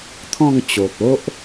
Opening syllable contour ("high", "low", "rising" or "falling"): falling